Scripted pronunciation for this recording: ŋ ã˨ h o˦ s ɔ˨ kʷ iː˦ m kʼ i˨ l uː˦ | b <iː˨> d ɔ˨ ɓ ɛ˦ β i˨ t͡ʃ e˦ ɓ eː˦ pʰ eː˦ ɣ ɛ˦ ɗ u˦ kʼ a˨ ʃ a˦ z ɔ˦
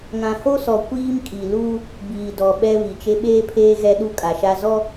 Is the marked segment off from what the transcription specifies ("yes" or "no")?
no